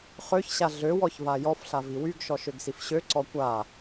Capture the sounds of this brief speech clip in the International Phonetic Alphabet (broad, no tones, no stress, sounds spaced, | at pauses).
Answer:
χ ø ç ɕ a ɮ ø w ɔ ç v a j ɔ f ɬ a v i w y ɡ ʃ ɔ ʃ ø ɡ s i f ɕ ø ǀ ɔ kʷ a